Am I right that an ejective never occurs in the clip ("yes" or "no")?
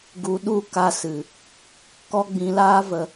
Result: yes